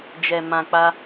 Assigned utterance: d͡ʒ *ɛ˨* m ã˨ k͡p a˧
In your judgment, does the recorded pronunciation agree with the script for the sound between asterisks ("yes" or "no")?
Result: yes